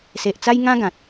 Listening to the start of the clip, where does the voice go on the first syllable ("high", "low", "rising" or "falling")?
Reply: low